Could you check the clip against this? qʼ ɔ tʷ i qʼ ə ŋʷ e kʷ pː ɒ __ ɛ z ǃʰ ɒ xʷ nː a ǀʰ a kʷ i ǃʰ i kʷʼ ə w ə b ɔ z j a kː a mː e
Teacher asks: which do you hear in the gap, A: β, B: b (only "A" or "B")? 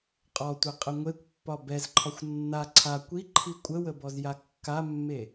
B